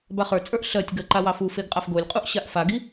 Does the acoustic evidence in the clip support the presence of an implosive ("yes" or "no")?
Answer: no